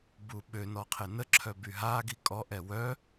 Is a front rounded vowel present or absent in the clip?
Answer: present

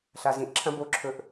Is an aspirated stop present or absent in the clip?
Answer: present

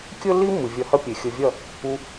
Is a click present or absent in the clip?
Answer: absent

